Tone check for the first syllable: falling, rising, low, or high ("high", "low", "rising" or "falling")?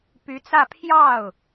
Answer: rising